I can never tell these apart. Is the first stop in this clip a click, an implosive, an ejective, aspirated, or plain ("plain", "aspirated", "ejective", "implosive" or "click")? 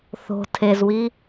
aspirated